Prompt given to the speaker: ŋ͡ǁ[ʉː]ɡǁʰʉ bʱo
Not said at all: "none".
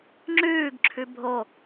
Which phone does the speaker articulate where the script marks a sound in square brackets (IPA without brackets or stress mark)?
ʉː